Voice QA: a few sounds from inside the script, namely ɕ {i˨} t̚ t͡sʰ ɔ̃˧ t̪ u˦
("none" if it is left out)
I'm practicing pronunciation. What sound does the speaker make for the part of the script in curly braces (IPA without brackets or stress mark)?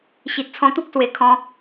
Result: i˨